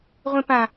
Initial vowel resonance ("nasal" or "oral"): nasal